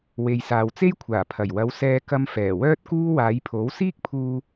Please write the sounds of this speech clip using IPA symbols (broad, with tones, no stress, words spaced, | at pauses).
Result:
we˨jsaː˨wt͡se˥j kʷʰaː˨˩pʰɐ˨˩jwɐ˨˧w sɛː˧kɐ˧m fɛː˨˩wœː˥t̚kuː˥ waː˨˧jpʰo˨˥w siː˥k̚pʰuː˧